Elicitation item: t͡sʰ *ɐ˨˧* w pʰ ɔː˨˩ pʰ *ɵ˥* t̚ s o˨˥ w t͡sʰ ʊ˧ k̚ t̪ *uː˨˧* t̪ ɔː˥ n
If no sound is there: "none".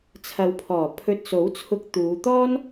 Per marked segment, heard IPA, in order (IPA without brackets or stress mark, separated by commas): ɐ˨˧, ɵ˧, uː˨˧